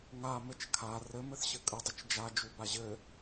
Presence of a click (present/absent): absent